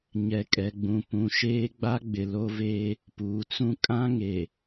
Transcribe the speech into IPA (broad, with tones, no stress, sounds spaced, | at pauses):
ɲ ɛ˨ kʼ ɛ˨ ɡ͡b ũ˨ p ũ˨ ʃ eː˦ ɡ͡b a˦ ɡ͡b ɪ˨ l o˦ v eː˦ | p uː˨ t͡s ũ˦ kʼ ã˦ ŋ e˨